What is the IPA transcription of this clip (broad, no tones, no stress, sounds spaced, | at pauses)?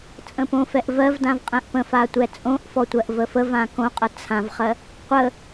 t͡sʼ ə̃ p õ f ɛ ʔ v ɜ v d ã v qʼ ɛ̃ ʔ p ə̃ f a tʷ ɛ t͡sʼ õ ʔ f ɔ tʷ ɜ ʔ v ə f ə v ã k õ qʼ ə t͡sʰ ã v χ ɜ | qʷ ə